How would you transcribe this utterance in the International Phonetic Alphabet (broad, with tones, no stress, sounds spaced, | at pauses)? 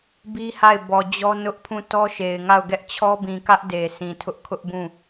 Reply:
b i˦ h a˦˨ ɪ̯ b ɔ˨ d͡ʑ ɔ˦ n ʊ˦ ʔ pʰ ũ˦˨ t ɔ˦ ʃ e˨ ɪ̯ ŋ a˦˨ ʊ̯ ɡ ɛ˦ ʔ t͡ɕʰ ɔ˦ b ĩ˨ k ä˦ ʔ d e˨ s ĩ˨ tʰ ʊ˦ ʔ kʰ ʊ˦ ʔ b ũ˦˨